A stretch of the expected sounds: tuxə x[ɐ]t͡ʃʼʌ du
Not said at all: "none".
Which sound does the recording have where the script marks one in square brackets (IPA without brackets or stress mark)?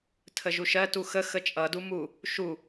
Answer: ə